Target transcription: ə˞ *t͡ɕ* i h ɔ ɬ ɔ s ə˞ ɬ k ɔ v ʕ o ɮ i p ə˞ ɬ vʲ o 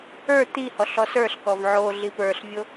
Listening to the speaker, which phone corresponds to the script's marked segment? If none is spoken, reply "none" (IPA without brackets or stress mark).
t̪